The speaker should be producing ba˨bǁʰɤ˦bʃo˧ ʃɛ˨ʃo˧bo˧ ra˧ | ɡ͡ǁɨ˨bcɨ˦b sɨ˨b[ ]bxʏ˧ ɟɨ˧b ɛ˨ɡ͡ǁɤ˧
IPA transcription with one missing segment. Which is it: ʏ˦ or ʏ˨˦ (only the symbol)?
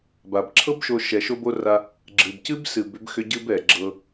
ʏ˨˦